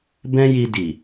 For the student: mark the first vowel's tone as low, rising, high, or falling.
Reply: high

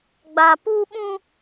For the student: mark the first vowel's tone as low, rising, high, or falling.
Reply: low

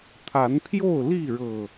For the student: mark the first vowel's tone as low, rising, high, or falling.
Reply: rising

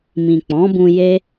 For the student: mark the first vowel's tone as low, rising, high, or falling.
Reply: low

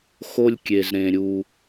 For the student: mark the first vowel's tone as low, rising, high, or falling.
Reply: high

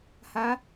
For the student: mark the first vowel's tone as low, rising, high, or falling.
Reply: rising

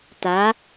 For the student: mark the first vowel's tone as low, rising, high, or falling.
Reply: rising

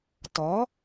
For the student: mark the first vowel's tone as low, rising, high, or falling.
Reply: rising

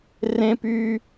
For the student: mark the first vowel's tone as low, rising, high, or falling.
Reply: high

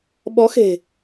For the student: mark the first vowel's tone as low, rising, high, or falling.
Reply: rising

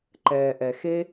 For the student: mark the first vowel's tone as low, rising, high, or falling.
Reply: low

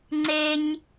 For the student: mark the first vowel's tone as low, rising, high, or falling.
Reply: high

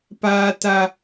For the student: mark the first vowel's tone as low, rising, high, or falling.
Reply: high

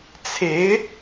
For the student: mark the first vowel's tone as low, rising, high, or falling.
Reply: rising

